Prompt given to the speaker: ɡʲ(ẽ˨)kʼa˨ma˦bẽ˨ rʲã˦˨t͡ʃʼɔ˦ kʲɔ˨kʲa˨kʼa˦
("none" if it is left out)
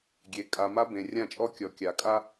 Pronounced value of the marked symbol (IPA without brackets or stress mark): e˨